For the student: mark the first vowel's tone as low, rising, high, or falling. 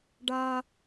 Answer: high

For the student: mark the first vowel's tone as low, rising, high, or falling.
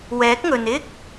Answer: rising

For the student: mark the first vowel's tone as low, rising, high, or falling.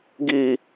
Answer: high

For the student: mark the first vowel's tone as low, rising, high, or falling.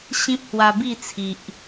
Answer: high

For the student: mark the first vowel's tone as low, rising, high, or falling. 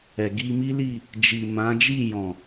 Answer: low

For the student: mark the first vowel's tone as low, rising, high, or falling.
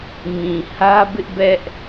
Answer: low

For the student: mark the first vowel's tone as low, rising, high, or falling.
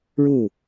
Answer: falling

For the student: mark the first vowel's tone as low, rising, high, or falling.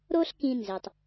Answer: high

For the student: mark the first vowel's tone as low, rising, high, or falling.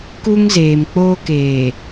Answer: high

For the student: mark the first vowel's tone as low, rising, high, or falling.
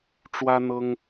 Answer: high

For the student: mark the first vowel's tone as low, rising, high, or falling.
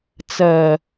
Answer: low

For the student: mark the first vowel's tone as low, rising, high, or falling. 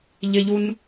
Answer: high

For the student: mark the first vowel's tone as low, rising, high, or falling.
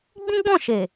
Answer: high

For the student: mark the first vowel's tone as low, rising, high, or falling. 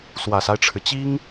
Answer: low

